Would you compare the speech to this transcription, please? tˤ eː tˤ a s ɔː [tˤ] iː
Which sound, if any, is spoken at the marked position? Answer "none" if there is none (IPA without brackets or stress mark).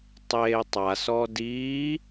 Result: d